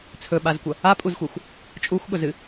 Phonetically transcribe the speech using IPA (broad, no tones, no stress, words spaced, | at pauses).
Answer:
t͡sʰɵɓazkʷɐ | apʼuzxʷexʷ | t͡ʃʼuxʷɠɵzɨ